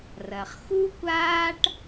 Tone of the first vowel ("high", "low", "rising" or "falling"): low